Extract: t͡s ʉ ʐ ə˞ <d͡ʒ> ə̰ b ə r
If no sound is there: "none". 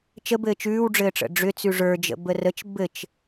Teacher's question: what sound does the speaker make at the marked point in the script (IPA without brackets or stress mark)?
d͡ʒ